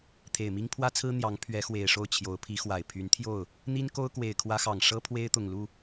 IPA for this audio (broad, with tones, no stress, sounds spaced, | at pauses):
t̪ʰ e˨˩ ɪ̯ m i˥ ŋ pʰ w ä˥ t͡sʰ ɹ̩˥ n̪ j ɑ˧˥ ŋ pʰ ɥ ɛ˧˥ x w e˨˩ ɪ̯ ʂ o˥˩ ʊ̯ t͡ɕʰ j o˧˥ ʊ̯ pʰ i˧˥ x w a˨˩ ɪ̯ pʰ y˧˥ n t̪ʰ j o˥˩ ʊ̯ | n̪ i˥ n k o˥ ʊ̯ k w e˨˩ ɪ̯ kʰ w ä˥ x ɑ˨˩ ŋ ʂ ɤ˥ pʰ w e˥ ɪ̯ t̪ ʊ˨˩ ŋ l u˥˩